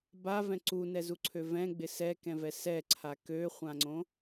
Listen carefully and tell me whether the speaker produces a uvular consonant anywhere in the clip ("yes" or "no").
yes